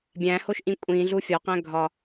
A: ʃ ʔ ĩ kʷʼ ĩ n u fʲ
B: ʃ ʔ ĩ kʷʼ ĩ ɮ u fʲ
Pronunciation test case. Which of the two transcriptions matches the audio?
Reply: B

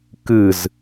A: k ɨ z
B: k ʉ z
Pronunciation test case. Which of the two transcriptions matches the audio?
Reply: A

